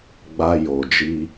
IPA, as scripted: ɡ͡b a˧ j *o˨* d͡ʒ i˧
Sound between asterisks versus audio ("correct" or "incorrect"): correct